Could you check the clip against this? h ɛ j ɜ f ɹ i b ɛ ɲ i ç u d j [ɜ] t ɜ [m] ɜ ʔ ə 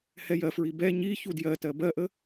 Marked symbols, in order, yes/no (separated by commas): yes, no